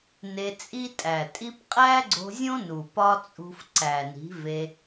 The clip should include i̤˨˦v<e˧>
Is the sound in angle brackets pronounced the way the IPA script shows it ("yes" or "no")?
yes